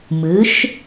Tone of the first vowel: rising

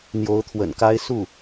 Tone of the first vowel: rising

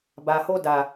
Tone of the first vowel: low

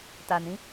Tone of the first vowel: low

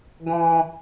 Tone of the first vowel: low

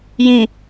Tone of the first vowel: low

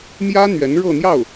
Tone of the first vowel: high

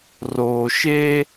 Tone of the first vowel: low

